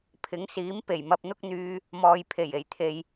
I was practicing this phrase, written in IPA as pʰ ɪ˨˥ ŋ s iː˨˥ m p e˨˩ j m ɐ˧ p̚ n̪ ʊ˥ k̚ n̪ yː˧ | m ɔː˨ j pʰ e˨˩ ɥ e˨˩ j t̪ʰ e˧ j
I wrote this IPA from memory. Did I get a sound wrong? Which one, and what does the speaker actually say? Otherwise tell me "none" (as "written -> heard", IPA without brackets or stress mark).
ɥ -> j